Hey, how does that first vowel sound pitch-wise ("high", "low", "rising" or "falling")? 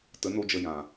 rising